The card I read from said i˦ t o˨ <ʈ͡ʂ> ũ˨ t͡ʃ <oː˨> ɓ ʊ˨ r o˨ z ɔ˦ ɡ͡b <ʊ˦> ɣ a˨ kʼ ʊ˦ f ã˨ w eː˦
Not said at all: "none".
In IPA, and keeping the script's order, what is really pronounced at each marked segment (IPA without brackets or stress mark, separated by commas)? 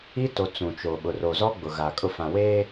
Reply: t͡s, o˨, ʊ˨